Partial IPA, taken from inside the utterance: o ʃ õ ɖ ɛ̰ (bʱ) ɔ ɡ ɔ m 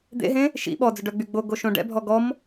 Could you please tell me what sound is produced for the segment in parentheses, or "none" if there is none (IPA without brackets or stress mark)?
bʱ